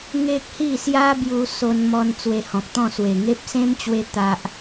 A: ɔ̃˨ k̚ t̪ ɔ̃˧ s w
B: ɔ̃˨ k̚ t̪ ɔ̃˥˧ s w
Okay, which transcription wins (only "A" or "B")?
B